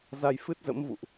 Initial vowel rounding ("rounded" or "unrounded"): unrounded